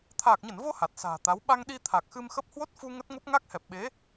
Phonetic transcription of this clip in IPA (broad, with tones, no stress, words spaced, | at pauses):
t̪ʰaː˨˩k̚ɲə˧˩nvo˧ ha˨˩t̚sa̤ː˨˩t̪a˨˦w ɓa˧ŋɗi˧ t̪ʰa˨˩k̚xɨ˧mxə˦˥p̚ hwo˦˥t̚fu˧ ŋə˦˥t̚ŋo˦˥p̚ ŋa˦˥k̚hɛ˨˩p̚ɓe˨˦